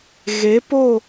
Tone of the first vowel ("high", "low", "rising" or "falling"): rising